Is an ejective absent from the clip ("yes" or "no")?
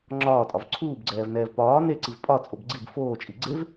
no